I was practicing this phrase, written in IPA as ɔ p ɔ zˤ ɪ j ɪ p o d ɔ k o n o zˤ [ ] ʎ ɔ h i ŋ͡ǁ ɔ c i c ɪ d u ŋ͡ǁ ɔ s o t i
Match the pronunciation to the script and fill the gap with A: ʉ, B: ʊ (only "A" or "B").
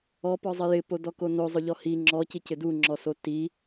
B